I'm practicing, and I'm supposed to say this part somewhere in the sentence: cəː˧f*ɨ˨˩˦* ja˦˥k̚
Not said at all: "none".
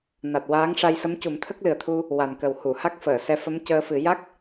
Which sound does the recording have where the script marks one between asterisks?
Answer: ɨ˨˩˦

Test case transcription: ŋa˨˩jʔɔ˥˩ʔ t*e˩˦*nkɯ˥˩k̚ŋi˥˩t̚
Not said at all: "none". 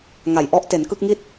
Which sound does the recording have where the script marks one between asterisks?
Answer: e˩˦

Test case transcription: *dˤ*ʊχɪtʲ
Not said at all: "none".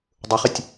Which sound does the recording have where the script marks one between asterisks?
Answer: dˤ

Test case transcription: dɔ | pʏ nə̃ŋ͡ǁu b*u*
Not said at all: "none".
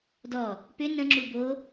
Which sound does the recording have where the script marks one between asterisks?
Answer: o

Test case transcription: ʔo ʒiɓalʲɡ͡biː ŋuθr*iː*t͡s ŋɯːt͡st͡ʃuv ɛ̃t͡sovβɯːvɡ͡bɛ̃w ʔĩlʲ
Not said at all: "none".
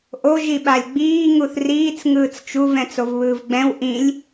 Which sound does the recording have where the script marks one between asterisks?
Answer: iː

